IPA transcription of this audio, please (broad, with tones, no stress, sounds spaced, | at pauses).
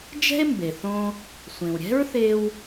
d͡ʒ ɛ̤˥ e̯ m b e˩ θ õ˧ | sʷ ẽ˩ w ɾʲ ɛ̤˥ ɹ θ e˧ w